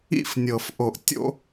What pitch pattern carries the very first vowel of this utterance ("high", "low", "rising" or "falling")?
high